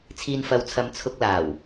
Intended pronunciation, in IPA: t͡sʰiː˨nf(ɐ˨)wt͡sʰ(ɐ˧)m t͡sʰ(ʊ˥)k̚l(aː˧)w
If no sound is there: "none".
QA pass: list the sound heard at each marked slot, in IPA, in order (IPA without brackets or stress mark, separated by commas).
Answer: ɐ˨, ɐ˨˧, ʊ˧, aː˨˩